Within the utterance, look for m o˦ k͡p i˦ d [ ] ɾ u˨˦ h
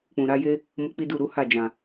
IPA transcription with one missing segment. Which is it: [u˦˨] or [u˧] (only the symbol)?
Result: u˦˨